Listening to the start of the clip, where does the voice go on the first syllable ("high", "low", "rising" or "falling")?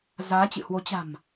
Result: rising